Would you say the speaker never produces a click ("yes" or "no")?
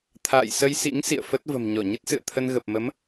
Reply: yes